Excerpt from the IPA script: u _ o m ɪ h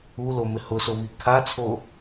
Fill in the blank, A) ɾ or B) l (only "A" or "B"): B